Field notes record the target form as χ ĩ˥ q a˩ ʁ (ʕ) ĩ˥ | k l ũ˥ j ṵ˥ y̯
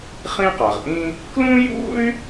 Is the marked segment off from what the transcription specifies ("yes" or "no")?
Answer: yes